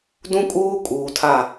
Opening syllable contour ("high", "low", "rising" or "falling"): high